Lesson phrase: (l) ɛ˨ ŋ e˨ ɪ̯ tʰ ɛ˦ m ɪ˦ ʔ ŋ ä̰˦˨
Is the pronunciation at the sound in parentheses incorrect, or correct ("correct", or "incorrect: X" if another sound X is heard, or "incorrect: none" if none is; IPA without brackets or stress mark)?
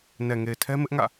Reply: incorrect: n